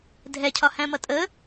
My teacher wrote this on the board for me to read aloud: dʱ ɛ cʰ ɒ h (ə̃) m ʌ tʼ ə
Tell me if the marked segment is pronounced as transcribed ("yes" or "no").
no